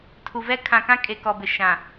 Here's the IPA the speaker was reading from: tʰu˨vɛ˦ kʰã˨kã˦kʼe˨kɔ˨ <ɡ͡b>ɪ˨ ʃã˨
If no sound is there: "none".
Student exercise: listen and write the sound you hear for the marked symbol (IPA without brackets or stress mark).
b